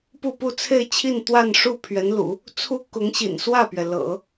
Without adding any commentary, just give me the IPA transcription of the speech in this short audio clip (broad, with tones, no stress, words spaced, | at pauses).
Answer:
pu˥˧pu˥˧t͡sʰe˥˧ɪ̯t͡ɕʰi˥˧n t̪wa˥˧nʂu˥˩ pʰɥɛ˧˥nlṵ˨˩˦ | t͡sʰu˥ kʊ˧˥ŋɕḭ˨˩nswä˥˩pɥɛ˩ lɤ̰˨˩˦